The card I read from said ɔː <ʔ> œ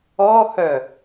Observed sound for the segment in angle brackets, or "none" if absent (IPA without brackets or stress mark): h